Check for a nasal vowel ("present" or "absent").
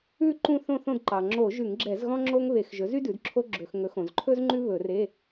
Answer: present